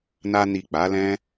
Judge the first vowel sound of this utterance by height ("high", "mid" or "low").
low